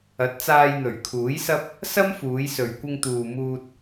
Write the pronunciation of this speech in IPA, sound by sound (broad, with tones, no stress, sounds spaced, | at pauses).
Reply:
ɐ˨˥ t̚ t͡s aː˧ j n̪ ɵ˨˩ ɥ kʰ uː˨˥ j s ɐ˥ p̚ | s ɐ˥ m f uː˨˧ j s ɵ˨ ɥ kʷ ɪ˧ ŋ t̪ uː˨ m uː˧ t̚